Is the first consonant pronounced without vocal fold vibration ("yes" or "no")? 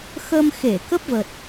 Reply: yes